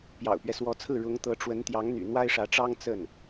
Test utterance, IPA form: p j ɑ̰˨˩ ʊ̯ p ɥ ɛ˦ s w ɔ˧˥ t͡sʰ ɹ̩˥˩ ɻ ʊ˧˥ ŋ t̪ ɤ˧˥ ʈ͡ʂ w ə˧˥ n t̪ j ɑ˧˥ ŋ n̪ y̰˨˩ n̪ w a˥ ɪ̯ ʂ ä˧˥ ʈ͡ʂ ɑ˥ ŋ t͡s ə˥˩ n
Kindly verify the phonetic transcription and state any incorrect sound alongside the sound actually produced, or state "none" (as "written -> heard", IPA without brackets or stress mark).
none